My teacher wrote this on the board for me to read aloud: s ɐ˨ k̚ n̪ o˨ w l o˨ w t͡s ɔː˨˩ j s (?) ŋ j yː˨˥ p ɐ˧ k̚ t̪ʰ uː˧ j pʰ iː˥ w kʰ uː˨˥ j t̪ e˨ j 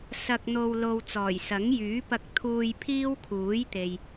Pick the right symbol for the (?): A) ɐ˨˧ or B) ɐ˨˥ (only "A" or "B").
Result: B